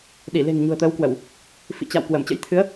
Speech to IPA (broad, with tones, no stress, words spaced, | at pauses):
ɗi˧˩le̤˨˩ŋ ɲṳ˨˩ə̯t̪əː˨˦wkwə˧˩˨w | fḭ˧˨t͡ɕa̰˧˨w kwə˧˩mt͡ɕə̰˧˥jt̪ʰɨ˨˦ə̯